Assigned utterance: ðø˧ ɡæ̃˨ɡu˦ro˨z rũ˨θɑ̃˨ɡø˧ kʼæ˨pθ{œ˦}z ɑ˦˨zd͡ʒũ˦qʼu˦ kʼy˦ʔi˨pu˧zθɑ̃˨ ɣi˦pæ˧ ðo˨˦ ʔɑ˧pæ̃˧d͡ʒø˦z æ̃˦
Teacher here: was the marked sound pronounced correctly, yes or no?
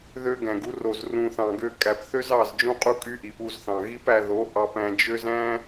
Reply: no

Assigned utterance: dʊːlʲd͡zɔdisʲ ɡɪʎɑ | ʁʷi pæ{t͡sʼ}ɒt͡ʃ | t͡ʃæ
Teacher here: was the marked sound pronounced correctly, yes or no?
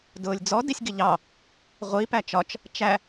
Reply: no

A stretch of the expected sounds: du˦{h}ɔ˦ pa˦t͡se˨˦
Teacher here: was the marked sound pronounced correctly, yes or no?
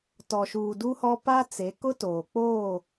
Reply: yes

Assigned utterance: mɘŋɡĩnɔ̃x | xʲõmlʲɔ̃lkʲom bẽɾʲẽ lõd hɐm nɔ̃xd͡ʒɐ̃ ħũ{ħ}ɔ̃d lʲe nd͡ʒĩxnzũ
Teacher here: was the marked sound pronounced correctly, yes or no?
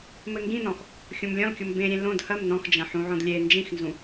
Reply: no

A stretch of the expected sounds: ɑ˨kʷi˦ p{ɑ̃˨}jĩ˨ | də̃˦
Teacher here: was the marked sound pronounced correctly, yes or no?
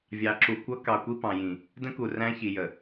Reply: yes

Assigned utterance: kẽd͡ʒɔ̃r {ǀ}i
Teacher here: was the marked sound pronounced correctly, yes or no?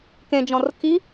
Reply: no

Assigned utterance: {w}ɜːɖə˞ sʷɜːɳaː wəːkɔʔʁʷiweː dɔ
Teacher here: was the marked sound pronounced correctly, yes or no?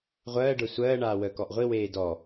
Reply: no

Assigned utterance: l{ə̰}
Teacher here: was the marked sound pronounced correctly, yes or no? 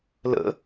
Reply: yes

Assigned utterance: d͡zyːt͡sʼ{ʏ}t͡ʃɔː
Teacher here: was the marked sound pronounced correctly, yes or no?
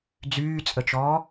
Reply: no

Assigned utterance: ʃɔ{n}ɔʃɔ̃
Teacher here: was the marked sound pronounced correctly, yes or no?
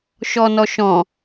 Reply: yes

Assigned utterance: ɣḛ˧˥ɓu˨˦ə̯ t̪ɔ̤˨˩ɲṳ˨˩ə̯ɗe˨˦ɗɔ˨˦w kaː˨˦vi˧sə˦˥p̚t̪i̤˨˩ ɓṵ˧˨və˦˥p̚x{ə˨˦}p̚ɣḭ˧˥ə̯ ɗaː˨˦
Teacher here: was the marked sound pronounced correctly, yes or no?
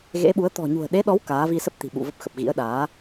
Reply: no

